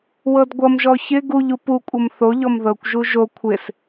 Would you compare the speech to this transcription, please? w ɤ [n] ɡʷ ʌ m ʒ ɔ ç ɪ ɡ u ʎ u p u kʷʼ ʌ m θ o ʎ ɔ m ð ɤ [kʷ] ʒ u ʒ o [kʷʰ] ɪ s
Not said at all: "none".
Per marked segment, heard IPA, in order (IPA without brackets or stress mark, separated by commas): d, kʷ, kʷʰ